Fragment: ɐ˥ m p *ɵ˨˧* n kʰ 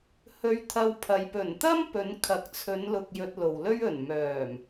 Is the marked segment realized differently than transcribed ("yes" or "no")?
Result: no